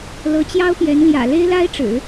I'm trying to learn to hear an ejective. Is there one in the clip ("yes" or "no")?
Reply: no